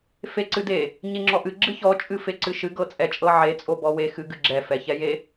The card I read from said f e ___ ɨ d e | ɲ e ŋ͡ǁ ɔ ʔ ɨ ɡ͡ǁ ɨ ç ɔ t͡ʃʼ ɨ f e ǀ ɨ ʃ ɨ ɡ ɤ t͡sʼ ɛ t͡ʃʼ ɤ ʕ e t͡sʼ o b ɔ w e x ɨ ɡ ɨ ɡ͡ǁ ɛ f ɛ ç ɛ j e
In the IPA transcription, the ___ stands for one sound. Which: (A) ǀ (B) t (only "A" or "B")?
A